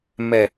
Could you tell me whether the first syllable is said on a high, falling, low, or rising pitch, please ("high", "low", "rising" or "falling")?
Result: low